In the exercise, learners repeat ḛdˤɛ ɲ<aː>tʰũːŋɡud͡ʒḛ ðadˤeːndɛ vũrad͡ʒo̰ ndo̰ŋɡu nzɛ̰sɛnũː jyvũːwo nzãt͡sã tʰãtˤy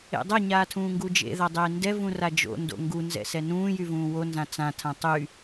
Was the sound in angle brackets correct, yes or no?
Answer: yes